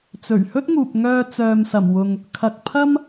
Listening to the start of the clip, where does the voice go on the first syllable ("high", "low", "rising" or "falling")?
low